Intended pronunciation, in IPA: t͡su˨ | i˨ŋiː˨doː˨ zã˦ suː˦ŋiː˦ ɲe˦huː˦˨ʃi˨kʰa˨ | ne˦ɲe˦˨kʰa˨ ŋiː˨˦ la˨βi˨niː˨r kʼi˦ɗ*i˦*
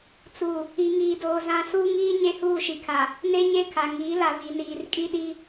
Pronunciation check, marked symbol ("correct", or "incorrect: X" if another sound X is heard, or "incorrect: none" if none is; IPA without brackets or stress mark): correct